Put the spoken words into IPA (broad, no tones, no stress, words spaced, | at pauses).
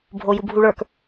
bʱojubʱuɭə˞k